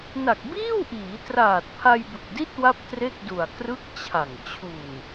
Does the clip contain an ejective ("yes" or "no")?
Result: no